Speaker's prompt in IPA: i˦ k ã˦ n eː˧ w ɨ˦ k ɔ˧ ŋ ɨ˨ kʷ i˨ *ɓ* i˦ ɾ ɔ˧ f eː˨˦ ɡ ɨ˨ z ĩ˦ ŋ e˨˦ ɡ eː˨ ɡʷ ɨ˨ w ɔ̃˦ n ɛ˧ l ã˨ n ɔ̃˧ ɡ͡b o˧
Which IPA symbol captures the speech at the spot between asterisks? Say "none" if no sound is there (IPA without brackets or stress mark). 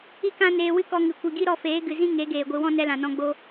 ɡ